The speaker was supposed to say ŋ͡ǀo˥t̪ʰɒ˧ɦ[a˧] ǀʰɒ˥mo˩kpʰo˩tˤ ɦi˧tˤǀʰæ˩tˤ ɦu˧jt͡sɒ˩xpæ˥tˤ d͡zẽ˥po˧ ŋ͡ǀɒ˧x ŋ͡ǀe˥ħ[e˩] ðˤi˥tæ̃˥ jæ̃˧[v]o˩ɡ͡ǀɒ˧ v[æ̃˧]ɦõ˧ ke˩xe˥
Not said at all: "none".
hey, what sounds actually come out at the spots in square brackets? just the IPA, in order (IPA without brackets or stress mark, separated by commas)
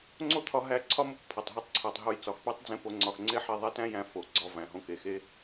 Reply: æ˧, e˧, f, æ̃˩